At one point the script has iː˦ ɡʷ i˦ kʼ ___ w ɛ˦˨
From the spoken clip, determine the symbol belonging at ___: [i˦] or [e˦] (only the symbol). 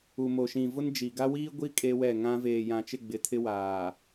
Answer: e˦